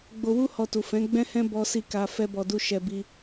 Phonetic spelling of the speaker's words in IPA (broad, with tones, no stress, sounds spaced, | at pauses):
ɡ͡b o˧ w u˦ h ɔ˧ t u˨ f ɛ̃˨˦ ɡ͡b ɛ̃˦ h ɛ̃˦ b ɔ˦ s i˦˨ k a˧ f ɛ˦ b ɔ˧ d u˦ ʃ ɛ˧ b i˧